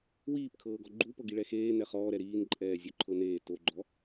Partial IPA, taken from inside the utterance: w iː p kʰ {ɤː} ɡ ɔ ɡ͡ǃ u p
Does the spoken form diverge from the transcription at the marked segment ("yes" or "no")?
no